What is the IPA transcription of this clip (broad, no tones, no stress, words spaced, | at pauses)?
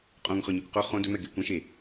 qʼõŋχɵ ɲə˞kʷqo χõ dɵmɛɡe kʷɛ̃ ʃe